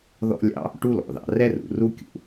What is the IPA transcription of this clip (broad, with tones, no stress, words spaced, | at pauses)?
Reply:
ðɔ̰˥lʲɑ̰˥ | ʈu˥lɔ̰˩ðɑ̰˩ rɛ˥rṵ˩ru˥ kʲṵ˩